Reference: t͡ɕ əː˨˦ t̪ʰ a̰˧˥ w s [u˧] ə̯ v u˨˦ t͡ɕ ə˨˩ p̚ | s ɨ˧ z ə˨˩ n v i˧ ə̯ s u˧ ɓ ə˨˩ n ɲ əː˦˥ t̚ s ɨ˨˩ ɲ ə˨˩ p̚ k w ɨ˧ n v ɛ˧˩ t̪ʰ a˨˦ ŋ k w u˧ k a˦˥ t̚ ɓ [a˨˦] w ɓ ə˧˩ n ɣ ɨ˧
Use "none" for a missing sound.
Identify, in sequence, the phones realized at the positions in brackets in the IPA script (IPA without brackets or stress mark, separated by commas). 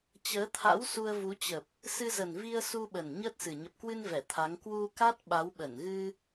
u˧, a˨˦